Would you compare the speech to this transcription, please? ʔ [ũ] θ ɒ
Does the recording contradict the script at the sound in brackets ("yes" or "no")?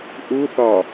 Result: yes